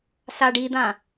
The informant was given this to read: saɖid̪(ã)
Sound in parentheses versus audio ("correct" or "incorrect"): correct